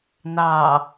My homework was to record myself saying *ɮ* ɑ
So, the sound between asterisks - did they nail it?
no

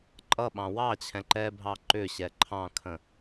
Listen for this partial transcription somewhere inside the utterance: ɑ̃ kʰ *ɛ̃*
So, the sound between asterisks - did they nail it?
no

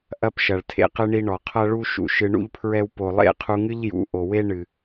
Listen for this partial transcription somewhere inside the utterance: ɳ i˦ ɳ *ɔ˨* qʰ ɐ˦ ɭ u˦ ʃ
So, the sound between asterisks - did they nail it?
yes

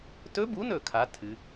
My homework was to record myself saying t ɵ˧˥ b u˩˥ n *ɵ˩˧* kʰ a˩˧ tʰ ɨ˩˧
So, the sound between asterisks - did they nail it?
no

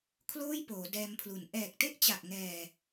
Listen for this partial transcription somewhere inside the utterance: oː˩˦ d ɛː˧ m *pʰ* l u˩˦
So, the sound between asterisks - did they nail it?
yes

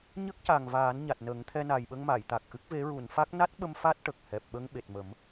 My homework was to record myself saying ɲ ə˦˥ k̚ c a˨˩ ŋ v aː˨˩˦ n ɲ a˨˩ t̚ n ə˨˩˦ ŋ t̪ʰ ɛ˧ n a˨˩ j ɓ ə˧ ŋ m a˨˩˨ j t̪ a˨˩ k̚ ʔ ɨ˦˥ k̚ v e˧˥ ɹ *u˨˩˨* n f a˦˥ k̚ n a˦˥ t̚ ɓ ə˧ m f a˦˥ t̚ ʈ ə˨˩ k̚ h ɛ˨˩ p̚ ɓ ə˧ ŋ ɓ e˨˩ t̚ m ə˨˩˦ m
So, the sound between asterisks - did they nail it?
yes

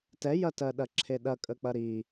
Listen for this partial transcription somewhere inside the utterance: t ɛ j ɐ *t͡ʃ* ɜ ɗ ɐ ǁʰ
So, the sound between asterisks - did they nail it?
no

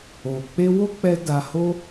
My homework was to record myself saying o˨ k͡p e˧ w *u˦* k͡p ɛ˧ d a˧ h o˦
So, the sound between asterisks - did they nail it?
no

